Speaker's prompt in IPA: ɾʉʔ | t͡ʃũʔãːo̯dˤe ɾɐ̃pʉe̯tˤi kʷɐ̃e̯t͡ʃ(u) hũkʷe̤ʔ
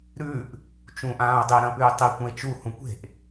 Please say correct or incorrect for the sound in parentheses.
correct